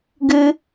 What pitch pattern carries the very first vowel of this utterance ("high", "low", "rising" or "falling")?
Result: high